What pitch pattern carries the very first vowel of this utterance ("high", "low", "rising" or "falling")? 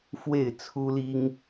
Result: falling